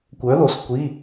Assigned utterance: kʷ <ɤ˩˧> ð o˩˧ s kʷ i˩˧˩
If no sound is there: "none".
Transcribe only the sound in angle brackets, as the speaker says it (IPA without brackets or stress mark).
ə˞˩˧